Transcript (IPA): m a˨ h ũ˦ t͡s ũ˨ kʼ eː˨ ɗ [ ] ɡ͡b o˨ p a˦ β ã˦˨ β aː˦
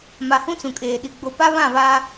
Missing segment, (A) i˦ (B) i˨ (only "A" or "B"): B